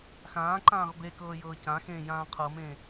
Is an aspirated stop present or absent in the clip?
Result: present